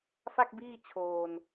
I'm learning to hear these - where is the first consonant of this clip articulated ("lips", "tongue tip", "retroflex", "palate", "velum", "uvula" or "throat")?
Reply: lips